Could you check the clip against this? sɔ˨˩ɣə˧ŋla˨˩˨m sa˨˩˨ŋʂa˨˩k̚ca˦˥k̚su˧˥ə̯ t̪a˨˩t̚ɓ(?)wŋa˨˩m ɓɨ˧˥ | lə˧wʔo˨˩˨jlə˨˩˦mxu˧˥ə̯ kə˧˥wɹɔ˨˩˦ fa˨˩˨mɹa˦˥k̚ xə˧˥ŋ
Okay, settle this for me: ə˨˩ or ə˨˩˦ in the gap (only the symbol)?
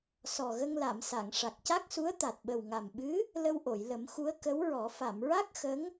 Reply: ə˨˩